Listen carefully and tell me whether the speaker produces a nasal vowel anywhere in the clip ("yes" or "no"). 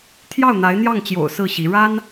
no